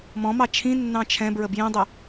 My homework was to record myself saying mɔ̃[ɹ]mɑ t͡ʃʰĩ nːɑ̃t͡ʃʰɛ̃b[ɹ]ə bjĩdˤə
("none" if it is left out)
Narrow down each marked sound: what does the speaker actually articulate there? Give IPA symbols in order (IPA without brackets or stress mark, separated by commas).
none, ɹ